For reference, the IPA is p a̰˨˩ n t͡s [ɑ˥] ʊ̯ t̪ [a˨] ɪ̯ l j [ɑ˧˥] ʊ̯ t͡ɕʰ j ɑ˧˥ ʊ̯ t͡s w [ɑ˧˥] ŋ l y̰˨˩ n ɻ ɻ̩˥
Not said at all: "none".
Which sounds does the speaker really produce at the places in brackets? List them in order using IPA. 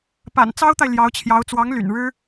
ɑ˥, a˨, ɑ˧˥, ɑ˧˥

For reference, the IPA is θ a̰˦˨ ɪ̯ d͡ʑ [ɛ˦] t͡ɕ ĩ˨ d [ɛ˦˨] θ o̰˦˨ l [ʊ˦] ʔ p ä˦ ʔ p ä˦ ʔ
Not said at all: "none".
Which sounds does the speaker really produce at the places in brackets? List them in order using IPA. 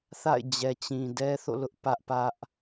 ɛ˨, ɛ˦, ʊ˦

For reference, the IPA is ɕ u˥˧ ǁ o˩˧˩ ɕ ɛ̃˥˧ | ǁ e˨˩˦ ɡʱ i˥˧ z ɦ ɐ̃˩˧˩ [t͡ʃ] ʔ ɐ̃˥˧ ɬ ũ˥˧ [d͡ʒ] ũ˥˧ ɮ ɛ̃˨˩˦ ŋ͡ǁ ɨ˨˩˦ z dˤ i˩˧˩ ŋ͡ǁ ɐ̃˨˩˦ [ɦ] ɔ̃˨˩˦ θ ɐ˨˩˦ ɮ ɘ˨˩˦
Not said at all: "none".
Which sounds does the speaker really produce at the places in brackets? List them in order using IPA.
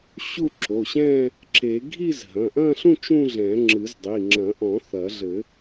none, t͡ʃ, ʔ

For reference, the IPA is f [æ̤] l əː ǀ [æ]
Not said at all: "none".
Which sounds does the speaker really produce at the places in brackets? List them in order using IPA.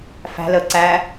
æ̤, æ

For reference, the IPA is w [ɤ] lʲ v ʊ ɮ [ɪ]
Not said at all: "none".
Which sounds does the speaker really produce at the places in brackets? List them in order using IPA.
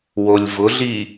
o, i

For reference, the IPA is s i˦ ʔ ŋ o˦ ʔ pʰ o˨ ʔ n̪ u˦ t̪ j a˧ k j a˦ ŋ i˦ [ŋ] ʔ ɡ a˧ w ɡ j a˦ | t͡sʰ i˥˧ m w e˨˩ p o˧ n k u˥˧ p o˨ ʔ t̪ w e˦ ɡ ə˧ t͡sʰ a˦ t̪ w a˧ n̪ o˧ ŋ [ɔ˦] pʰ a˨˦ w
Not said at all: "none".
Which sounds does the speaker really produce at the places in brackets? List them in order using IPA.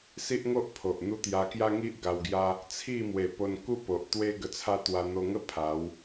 none, ə˦

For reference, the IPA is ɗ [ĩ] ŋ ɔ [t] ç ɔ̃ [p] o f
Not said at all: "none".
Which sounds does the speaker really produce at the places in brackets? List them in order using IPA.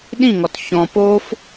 ĩ, t, p

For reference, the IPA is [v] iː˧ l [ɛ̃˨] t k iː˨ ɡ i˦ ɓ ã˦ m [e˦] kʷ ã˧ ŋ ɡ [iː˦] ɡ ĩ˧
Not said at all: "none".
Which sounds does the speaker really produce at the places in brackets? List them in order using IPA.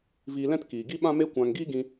v, ɛ̃˦, e˦, iː˦

